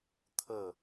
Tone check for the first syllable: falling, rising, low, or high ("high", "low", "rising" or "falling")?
falling